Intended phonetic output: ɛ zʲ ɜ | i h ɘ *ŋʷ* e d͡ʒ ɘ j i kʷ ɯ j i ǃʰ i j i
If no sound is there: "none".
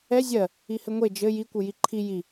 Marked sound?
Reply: ŋʷ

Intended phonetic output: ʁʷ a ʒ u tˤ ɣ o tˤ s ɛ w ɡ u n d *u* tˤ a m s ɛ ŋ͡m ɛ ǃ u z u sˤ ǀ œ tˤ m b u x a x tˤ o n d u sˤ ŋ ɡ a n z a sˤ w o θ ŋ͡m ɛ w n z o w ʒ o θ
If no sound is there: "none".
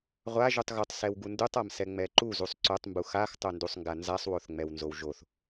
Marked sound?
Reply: u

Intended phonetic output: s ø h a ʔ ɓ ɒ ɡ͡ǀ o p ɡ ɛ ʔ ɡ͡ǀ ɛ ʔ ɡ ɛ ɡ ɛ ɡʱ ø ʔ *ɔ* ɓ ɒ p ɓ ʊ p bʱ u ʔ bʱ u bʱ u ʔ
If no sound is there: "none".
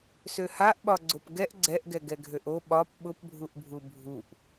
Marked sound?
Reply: o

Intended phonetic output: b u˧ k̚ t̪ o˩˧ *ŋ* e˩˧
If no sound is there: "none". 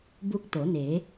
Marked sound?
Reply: n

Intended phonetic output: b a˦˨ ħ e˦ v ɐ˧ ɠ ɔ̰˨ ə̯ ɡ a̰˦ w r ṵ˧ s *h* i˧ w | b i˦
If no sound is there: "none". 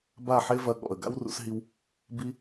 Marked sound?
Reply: ɦ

